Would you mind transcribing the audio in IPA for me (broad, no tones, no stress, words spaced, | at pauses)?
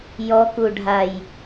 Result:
jɔkuɖʱaj